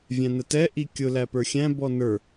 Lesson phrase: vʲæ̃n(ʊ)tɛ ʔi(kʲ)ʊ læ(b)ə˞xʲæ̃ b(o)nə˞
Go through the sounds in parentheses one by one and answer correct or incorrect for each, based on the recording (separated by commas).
incorrect, correct, incorrect, incorrect